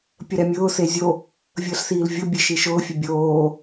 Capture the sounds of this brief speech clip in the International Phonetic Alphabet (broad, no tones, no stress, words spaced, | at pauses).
pʲəɾɛmʲʊː sezʲo | vʲəːɬsiːlvʲo bʲeʃiʃʊː fʲɛbʲoː